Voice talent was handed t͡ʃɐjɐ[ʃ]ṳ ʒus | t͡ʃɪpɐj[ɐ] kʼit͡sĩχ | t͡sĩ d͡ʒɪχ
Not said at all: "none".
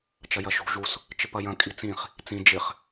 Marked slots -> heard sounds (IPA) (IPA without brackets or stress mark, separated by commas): ʃ, ɐ̃